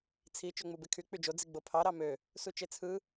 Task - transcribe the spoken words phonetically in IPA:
t͡sʰ i t͡ʃ ø ŋ͡m u b e kʰ y k͡p y d͡ʒ o d͡z i ɡ͡b o pʰ ɑ ɾ ɑ m ø | s u t͡ʃ e t͡sʰ ɯ

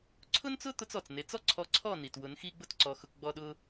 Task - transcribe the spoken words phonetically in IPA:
ǀʰ ʊ˦ n t͡s ʊ˦ t̪ ʊ˦ t͡s ɔ˨ t͡s n e˨˦ t͡s ɔ˦ ǀʰ ɔ˧ ǀʰ ɔ˦˨ n i˨ t w ʊ˨˦ n x i˦ ɡ͡b ʊ˦ t ǀ ɔ˧ x ʊ˧ k ɡ͡b ɔ˦ ɗ ʊ˦

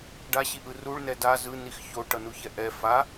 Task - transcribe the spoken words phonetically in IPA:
ɖ a ɕ i ʔ ɯ r u ɭ n ɛ d a z ɯ n i x ç o ʈ ʌ n u ç ɛ ʔ ɛ f a

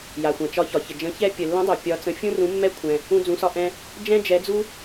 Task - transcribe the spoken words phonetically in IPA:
j a˩ xʷ ã˩ t͡ʃ ɒ˨˦ ç ɒ˩ ç ə˩ d͡ʒ ə̃˨˦ ç ɛ˦ pʲ ə˩ lː ə̃˨˦ dˤ ɛ˩ pʲ ɒ˨˦ t͡s ə̃˨˦ fʲ ũ˦ r ũ˨˦ mː ɛ˦ kʷʰ ɛ̃˩ | ũ˦ d͡z ũ˨˦ s ɒ˦ ʔ ɛ̃˦ | d͡ʒ ɛ̃˦ d͡ʒ ɛ˨˦ d͡z u˦

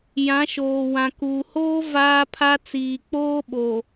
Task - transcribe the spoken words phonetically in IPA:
j ã˨˦ ʃ oː˨ w ã˨ k uː˨ h oː˦ v aː˦ pʰ a˦ t͡s iː˨ k͡p oː˦ ɓ o˨

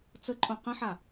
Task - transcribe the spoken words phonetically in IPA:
t͡s ə ǃʼ õ q ə̃ ħ a

